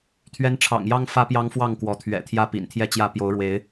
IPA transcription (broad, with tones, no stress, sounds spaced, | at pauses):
t̪ʰ ɥ ɛ˦ n ʈ͡ʂʰ ɑ̰˨˩ ŋ j ɑ˦ ŋ f ä˦ p j ɑ˦ ŋ f w ɑ˥˨ ŋ k w ɔ˨˦ t̪ʰ ɥ ɛ̰˨˩ t̪ʰ j ä˥˨ p ḭ˨˩ n t̪ʰ j ɛ˥˨ t͡ɕ j ä˥˨ p j o˨˦ ʊ̯ ɻ w e˨˦ ɪ̯